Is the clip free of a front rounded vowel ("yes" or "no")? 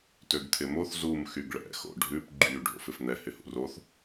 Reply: no